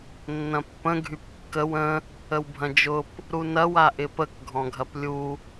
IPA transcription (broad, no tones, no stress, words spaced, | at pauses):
nːɐ̃pːə̃ ɡʱypkːəw ə̃ | əwbʱɐ̃d͡ʒʊp | ɾunɐw aʔɪpək ɡʱɔ̃ɡʱɐplʲu